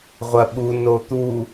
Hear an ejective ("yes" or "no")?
no